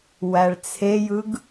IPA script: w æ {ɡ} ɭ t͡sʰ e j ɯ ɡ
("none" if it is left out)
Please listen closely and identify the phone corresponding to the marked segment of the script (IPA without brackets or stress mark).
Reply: none